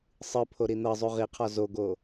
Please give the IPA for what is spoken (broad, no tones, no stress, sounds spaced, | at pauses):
sˤ ɯ pʰ o ɾ i n̪ ɤ zˤ u ʁ i qʰ ɔ z o ɡ o